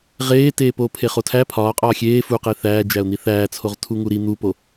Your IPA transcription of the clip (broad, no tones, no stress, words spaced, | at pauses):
ʁeːteː poːpʰeχotʰæ pʰɒː qʼɒːxʲeː fuqe θæːd͡ʒæʊ̯n̪i θæːt͡sʰoʁ tʰuŋuɾi n̪upo